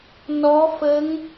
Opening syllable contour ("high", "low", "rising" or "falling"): rising